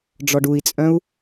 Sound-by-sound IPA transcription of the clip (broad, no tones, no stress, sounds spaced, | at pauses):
ɖ͡ʐ ɔ ɖ u i̯ t͡sʼ œ̃ u̯